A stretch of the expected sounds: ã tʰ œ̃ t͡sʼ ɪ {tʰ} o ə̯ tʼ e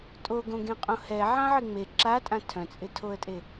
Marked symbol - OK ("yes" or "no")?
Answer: yes